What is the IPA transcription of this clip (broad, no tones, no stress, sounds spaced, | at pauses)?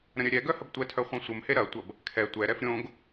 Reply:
ɾ ə̃ ɾʲ œ ɾʲ ɛ ɡ œ h ə b tʷ ɛ tʰ œ χʷ œ̃ sʷ ə m h e ɾ ɐ tʷ ɐ b | kʰ ɛ tʷ ɛ ɾ ɛ f ɾʲ õ ɡ